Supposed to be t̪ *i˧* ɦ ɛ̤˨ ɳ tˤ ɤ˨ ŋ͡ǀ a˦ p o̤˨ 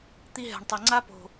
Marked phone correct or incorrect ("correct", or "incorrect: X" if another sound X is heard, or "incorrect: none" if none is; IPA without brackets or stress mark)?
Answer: correct